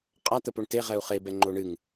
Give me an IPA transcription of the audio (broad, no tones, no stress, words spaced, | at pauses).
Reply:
qʼa t̪əpoɳte ʁɛu̯χe bɛŋ͡ǃoɳɨŋ